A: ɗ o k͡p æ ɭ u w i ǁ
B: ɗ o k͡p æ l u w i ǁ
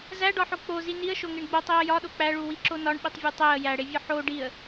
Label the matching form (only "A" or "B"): A